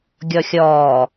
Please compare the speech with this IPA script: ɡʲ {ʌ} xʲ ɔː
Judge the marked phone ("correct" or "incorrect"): incorrect